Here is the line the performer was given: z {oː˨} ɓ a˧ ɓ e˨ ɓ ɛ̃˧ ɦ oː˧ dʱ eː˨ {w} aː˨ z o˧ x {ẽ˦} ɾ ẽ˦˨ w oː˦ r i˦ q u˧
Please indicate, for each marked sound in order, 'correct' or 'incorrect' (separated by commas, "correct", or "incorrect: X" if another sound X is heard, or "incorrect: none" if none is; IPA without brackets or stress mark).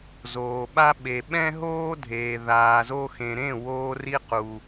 correct, incorrect: ð, incorrect: ẽ˨